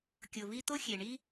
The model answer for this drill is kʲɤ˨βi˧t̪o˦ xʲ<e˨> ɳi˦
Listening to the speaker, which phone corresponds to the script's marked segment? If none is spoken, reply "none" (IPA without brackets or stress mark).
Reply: e˨